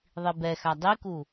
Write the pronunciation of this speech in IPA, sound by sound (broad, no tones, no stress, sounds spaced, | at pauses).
ðˤ i b ɛ x a dˤ i k u